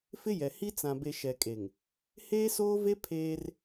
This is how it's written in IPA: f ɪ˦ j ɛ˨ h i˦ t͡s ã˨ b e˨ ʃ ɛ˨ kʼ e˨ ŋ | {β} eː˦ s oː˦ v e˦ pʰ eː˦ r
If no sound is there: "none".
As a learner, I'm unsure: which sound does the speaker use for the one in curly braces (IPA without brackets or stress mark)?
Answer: h